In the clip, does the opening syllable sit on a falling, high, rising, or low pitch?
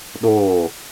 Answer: falling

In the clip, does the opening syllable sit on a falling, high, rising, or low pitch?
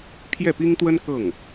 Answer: falling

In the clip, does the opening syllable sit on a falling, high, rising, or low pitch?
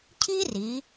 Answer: high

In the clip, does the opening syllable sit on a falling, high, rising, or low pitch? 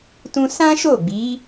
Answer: high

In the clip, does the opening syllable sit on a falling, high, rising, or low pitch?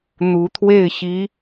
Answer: rising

